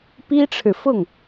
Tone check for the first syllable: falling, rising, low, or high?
high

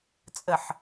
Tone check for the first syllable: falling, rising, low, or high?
low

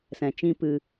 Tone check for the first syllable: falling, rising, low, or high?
low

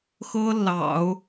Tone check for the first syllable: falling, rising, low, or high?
high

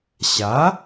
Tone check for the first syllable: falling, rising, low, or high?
rising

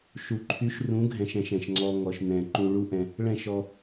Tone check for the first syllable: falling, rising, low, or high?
low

